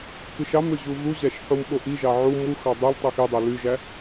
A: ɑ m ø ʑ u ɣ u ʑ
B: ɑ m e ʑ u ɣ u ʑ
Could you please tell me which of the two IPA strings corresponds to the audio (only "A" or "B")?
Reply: A